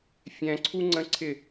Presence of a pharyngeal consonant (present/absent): absent